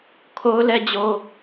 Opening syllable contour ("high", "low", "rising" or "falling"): high